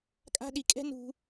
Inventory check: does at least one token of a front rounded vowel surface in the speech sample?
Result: no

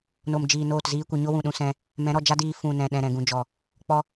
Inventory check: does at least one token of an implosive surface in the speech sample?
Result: yes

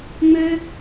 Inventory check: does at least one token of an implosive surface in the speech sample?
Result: no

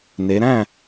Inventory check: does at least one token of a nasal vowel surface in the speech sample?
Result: yes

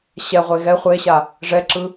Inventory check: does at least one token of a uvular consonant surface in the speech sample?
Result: yes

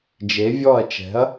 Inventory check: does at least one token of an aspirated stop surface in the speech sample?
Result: no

